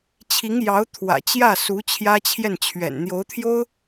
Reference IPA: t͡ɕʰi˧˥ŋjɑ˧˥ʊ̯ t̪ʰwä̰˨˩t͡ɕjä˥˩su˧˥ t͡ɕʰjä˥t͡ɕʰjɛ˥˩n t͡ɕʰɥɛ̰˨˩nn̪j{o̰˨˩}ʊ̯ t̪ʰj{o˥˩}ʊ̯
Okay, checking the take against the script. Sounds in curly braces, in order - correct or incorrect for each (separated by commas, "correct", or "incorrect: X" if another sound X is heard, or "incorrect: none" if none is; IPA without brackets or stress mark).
incorrect: o˧˥, incorrect: o˥